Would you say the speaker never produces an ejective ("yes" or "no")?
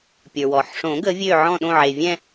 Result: yes